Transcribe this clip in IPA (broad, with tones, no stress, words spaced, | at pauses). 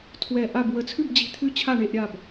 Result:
tʰwɛ˧˩ʔa˥˨b wə˧˩t͡sʰʉ˥˨bd͡ʑi̤˧˩ t̪ʰʉ˥˨t͡ɕʰa˥˨ɳe˥˨ʔ ɾʲa˥˨b